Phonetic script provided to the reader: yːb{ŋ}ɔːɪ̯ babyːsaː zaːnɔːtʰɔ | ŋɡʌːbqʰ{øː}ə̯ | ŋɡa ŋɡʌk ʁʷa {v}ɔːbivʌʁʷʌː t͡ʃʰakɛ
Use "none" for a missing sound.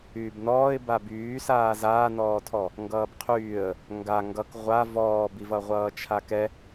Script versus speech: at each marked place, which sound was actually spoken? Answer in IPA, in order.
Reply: n, yː, v

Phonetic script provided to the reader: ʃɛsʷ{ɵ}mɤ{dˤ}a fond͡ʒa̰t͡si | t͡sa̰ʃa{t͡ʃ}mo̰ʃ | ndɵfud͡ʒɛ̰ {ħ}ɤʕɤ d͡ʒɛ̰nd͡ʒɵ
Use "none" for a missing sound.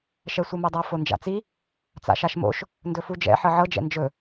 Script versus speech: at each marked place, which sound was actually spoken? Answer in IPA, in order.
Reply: ɤ, dˤ, ʃ, ħ

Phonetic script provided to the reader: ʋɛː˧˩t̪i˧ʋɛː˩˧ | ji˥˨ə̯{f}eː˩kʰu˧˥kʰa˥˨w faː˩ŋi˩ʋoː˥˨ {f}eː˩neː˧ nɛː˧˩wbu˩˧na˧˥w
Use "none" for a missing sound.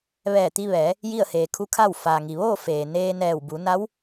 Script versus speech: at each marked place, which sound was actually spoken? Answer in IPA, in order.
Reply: h, f

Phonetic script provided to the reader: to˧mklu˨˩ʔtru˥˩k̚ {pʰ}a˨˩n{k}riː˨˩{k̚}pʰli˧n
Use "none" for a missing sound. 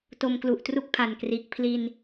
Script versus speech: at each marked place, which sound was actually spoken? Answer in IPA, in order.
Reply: pʰ, k, k̚

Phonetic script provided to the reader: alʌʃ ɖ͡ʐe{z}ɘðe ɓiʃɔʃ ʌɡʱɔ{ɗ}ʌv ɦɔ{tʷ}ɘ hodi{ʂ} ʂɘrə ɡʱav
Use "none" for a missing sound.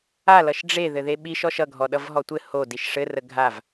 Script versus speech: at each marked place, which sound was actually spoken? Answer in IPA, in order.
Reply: ð, ɗ, tʷ, ʃ

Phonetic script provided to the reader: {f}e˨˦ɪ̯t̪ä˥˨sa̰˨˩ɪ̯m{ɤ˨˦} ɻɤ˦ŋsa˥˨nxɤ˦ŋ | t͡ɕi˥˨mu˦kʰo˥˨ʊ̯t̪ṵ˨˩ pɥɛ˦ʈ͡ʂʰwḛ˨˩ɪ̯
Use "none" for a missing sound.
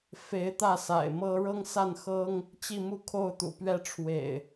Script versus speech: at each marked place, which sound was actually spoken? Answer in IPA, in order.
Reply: f, ɤ˦

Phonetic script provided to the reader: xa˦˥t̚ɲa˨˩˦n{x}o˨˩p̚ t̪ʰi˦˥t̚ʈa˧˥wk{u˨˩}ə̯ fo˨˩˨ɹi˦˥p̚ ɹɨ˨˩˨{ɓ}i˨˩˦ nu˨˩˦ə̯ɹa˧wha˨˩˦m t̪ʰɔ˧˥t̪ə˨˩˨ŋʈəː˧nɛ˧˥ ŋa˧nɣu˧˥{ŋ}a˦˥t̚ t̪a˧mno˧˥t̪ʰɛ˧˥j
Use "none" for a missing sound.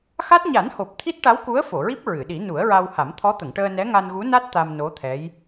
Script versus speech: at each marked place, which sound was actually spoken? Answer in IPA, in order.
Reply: h, u˧˥, ɗ, n

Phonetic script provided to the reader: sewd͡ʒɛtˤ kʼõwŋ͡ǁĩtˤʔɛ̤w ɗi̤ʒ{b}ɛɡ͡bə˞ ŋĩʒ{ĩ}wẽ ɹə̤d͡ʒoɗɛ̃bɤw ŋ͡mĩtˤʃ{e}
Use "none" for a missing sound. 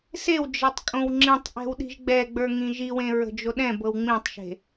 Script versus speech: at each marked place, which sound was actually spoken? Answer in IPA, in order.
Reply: ɡ͡b, i, e̤

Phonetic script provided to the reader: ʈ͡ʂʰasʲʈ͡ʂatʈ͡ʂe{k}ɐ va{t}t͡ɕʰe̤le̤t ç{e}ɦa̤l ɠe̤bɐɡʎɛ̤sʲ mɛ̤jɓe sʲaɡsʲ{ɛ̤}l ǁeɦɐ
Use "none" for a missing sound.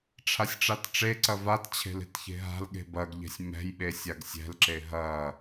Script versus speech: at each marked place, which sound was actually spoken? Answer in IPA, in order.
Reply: ǀ, t, e̤, ɛ̤

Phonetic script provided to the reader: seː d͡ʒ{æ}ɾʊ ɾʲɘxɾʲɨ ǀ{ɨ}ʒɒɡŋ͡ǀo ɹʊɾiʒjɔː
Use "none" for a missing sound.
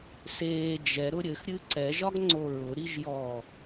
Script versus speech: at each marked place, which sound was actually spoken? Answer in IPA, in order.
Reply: ɛ, ɛ

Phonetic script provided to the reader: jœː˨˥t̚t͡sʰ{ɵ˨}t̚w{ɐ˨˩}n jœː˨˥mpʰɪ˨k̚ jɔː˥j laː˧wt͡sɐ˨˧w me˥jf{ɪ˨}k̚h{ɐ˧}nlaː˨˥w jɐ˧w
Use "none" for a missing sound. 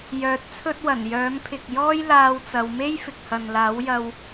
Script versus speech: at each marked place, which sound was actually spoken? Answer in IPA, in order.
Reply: ɵ˥, ɐ˨˩, ɪ˨, ɐ˨

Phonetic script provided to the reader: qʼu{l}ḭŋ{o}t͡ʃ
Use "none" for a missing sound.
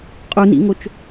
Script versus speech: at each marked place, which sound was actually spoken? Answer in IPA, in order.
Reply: n, o

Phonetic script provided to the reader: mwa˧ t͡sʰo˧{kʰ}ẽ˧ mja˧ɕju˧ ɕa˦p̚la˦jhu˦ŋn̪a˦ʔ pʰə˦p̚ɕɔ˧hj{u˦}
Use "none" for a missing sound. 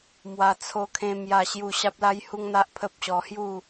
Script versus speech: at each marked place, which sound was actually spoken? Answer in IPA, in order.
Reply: kʰ, u˥˧

